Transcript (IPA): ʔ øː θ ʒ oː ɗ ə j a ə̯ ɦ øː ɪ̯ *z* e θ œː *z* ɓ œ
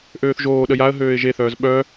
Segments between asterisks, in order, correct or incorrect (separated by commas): incorrect, correct